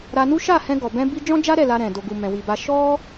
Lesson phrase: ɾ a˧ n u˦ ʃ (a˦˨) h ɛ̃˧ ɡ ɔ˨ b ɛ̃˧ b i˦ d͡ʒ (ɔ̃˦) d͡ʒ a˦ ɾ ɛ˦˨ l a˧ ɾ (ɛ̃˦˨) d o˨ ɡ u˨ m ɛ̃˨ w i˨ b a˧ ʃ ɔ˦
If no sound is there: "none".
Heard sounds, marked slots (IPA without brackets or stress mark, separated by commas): a˦˨, ɔ̃˦, ɛ̃˨